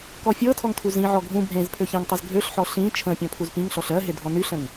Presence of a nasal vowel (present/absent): present